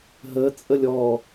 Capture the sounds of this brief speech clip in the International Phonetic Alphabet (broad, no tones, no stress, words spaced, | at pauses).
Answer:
ɦət͡sʼəlʲ ɔ